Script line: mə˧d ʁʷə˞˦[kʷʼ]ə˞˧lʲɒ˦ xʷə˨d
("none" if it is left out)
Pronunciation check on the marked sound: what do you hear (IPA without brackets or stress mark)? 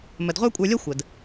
kʷʼ